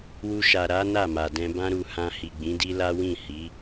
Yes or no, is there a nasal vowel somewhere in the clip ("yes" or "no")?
yes